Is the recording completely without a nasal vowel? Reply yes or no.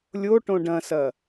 no